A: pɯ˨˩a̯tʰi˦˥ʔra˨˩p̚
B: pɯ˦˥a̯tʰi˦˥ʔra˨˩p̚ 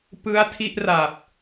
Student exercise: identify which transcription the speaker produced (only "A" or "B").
B